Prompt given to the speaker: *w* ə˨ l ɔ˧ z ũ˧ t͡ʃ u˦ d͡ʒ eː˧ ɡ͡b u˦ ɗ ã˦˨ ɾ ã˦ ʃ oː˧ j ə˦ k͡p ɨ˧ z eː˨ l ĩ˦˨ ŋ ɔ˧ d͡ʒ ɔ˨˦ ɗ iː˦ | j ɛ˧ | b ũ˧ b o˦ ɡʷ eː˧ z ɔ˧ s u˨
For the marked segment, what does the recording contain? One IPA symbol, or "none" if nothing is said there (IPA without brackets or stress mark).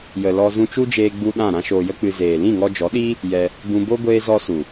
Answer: j